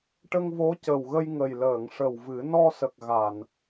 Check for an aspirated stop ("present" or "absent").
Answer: absent